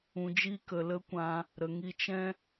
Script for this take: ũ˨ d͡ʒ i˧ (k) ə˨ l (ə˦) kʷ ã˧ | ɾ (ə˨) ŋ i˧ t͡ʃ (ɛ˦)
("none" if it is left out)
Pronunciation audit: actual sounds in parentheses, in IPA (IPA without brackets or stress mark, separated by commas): k, ə˦, ə˨, ɛ̃˦